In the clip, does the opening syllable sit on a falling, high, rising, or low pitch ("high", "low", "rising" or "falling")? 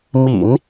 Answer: low